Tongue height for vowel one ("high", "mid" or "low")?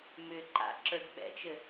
high